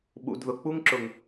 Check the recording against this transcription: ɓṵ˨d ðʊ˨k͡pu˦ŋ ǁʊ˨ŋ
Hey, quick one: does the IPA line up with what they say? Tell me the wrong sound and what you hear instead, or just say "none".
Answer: none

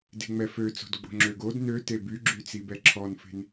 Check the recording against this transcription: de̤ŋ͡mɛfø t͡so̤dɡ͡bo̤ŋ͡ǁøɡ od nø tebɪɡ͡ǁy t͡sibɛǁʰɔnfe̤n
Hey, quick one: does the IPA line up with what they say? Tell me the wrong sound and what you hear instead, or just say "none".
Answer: ɪ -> y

